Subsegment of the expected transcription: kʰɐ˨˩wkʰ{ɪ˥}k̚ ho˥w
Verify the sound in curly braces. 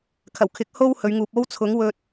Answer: incorrect: ɪ˨˥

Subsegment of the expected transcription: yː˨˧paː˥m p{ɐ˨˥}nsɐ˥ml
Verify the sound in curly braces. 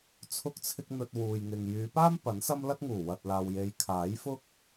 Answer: correct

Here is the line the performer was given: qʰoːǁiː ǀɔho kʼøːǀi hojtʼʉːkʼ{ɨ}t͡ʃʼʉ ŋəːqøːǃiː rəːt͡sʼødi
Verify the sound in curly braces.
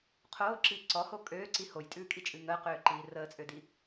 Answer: incorrect: i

